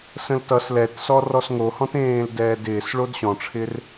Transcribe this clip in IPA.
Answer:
s ə̃ l t ʌ s l ɛ t s ɔ r ɔ s ŋ o h ɔ̃ t ẽː l d ɛː d ɪː s ɭ o d ɕ ɔ̃ ʈ͡ʂʰ ɪ r

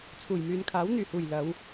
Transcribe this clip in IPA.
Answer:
t͡sʰ uː˨˩ j m yː˨ n kʰ aː˨˥ w n̪ yː˨˩ h uː˨˩ j l ɐ˨˧ w

